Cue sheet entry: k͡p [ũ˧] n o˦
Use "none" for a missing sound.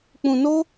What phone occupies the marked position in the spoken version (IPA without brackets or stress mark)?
ũ˧